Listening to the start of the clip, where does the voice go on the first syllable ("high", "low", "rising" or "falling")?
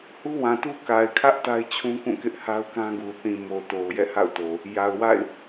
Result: high